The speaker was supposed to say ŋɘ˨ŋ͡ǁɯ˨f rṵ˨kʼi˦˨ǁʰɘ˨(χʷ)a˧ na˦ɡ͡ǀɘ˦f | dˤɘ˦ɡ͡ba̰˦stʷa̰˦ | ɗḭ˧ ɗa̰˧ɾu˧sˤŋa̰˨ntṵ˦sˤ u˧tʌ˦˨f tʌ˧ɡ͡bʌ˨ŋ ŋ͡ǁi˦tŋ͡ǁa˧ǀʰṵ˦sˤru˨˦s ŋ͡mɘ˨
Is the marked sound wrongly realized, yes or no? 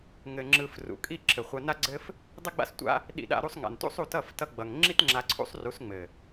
no